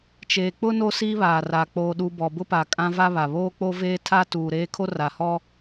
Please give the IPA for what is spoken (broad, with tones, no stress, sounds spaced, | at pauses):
t͡ʃ eː˨ k͡p ʊ˦ n o˦ s iː˦ β aː˨ r a˨ k͡p oː˨ ɗ uː˨ b ɔ˨ b ʊ˦ p a˨ kʼ ã˦ v a˦ β a˨ β oː˦ k͡p o˦ v eː˦ tʰ a˦ t uː˨ ɾ eː˦ kʰ o˦ r a˨ h ɔ˦